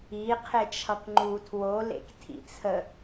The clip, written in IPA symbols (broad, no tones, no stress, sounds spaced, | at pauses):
i qʰ e t͡ʃʰ ʌ k ŋ͡ǃ u tʰ w o l ḛ k tʰ ḭ t͡sʰ ə